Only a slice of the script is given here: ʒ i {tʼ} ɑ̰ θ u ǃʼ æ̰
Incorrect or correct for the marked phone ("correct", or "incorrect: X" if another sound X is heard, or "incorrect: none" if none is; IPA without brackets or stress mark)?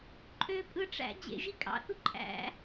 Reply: incorrect: kʼ